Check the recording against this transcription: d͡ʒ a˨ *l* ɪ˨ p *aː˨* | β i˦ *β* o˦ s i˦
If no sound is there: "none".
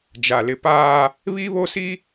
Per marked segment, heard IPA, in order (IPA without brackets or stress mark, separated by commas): l, aː˦, β